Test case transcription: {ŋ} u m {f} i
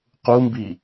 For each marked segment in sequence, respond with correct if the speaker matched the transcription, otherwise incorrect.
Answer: incorrect: q, incorrect: b

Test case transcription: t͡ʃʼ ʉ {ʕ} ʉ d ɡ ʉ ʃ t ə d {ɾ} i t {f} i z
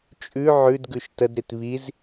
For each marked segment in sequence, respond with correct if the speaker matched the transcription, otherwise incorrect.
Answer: correct, correct, incorrect: β

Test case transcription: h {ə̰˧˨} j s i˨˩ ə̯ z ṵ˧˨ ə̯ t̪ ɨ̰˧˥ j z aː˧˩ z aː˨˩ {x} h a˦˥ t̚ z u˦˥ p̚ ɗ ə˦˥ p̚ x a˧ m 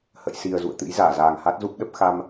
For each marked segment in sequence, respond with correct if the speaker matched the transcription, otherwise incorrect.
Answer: correct, incorrect: ŋ

